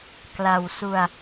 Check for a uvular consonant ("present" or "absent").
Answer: absent